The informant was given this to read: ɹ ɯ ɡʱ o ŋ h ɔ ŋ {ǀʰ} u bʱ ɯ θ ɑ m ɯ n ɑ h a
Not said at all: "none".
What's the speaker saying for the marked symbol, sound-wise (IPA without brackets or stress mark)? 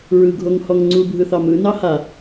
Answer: ŋ͡ǀ